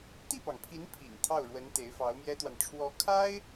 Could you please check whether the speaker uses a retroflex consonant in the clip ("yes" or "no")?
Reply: yes